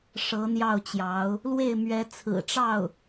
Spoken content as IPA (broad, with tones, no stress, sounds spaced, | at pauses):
ʂ ɤ˧˥ n̪ j ɑ˥˩ ʊ̯ t͡ɕ j ɑ˧˥ ʊ̯ | l w e˥˩ ɪ̯ m ɥ ɛ˧˥ t͡sʰ ɹ̩˨˩ ʈ͡ʂ ɑ˥˩ ʊ̯